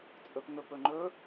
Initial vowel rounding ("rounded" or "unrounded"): rounded